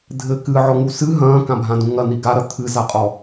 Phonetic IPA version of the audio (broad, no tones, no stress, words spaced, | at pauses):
dʱɘ kɨʕɔŋu sɨ ɦɐ̃ːkãbʱãd̪ũ ŋɐn̪i ɡaɾɐ t̪ʰɨzaqʼɔ